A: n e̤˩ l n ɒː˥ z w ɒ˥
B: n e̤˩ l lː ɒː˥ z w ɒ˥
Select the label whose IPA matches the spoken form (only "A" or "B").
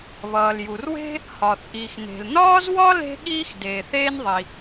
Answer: A